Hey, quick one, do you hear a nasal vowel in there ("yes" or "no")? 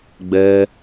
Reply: no